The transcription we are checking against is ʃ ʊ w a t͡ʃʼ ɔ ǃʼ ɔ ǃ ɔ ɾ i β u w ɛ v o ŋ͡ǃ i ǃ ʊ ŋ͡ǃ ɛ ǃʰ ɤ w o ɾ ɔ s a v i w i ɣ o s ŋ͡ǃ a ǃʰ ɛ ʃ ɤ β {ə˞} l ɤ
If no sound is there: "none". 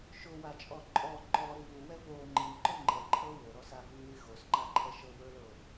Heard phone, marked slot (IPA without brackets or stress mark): ə˞